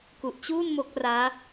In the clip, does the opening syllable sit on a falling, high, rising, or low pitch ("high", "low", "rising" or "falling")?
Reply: low